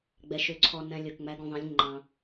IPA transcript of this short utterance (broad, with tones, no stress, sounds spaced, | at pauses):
ɡ͡b ɛ˨ ʃ ø˨ ǀʰ ɔ˨ n ɛ̃˨ lʲ ɵ˨ k ŋ͡m æ˨˦ ɡ ũ˨ ðˤ ẽ˨˦ lʲ ŋ͡ǃ ɑ̃˨